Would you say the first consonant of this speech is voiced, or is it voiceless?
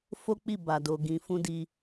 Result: voiceless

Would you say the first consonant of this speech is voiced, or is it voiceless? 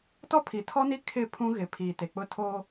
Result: voiceless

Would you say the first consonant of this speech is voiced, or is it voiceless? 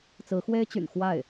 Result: voiceless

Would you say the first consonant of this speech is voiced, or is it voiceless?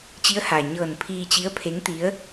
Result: voiceless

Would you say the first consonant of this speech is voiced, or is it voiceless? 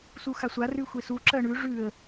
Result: voiceless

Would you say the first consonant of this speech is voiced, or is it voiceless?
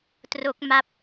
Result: voiceless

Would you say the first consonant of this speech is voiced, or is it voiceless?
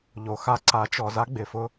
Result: voiced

